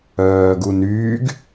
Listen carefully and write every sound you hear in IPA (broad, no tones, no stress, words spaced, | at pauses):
œːɡunyːɡ